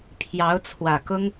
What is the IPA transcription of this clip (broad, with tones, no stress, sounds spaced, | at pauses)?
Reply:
pʰ j ɑ˧˥ ʊ̯ t͡sʰ w ä˨˩ k ʊ˥ ŋ